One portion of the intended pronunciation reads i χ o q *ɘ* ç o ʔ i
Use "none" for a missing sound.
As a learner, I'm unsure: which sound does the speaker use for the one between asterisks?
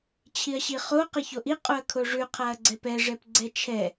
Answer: ɘ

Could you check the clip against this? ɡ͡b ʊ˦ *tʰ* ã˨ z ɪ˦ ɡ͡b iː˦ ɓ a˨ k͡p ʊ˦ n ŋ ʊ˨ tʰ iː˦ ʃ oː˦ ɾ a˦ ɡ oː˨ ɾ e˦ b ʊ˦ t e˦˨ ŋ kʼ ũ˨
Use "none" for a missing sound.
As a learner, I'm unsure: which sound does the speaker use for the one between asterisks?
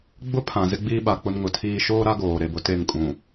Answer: pʰ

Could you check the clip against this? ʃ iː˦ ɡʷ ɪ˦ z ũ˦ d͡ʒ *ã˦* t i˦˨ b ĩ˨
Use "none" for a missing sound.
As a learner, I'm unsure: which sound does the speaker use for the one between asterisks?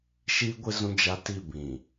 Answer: a˦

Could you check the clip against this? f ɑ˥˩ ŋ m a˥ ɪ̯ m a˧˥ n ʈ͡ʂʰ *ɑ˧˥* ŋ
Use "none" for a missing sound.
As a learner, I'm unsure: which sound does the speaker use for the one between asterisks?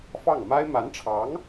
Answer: ɑ˧˥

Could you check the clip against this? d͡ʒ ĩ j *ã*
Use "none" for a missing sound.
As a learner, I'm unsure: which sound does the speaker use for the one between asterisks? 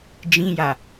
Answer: a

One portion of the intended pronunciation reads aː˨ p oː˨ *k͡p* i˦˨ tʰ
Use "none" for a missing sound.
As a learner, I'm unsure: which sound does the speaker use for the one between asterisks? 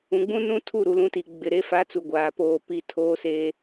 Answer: p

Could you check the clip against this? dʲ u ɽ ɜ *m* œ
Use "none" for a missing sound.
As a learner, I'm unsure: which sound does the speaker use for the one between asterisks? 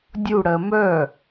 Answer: m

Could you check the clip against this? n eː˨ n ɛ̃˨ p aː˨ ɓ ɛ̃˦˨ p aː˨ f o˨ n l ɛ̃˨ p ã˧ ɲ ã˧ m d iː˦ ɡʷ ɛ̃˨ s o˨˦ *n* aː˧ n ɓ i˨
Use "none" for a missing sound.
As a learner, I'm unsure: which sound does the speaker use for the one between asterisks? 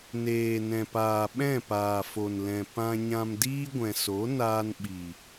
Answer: n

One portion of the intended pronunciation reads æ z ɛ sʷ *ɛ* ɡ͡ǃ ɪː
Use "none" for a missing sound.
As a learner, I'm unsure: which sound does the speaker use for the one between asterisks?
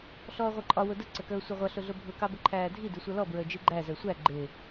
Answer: æ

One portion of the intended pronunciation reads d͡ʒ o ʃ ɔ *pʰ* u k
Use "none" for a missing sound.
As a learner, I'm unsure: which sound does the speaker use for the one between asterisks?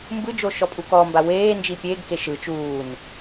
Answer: pʼ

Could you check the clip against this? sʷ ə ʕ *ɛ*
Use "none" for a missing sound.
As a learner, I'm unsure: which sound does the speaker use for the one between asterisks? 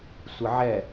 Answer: ɛ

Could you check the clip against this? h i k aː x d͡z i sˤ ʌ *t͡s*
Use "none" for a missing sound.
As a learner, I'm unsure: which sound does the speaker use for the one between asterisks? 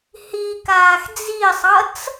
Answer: t͡s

